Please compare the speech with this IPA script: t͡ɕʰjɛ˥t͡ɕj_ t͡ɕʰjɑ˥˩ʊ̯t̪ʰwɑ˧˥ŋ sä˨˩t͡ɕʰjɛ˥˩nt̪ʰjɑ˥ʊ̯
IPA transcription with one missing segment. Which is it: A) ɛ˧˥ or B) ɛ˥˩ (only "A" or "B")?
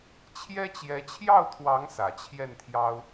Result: A